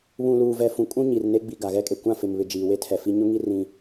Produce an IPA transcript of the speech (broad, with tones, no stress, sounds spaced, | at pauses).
β ũ˨ l uː˨ v ɛ˨ f ũ˨ kʼ ũ˦ ɲ i˨ r n e˦ ɡ͡b i˨ ɡ a˨ ɣ ɛ˦ kʼ e˨ kʷ ã˦˨ f ɪ˨ m β ɪ˨ d͡ʒ iː˨ w e˦ tʰ ɛ˨ f i˦ ɲ ʊ˦ ŋ i˦ r ĩ˦